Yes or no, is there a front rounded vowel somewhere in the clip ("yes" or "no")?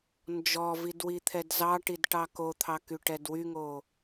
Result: yes